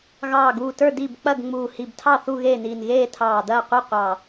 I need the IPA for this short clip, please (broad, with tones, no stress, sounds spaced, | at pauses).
ɣ ɑː˧˩ ɡ uː˧˩ t ə˞˥˨ d i˥˨ b k͡p ɐ˥˨ ɡ ŋ͡m uː˧˩ h i˧˩ b tʰ ɑ˥˨ θ u˥˨ ɣ eː˥˨ n iː˧˩ n ɣ eː˥˨ tʰ ɑː˧˩ d ɐː˥˨ qʷ i˥˨ qʷ ɑ˧˩